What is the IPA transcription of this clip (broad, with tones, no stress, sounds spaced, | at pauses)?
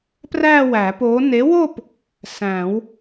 p r æ˥˧ w æ˨˩˦ p o˨˥ n e˨˥ w o˥˧ p | s æ̃˨˩˦ w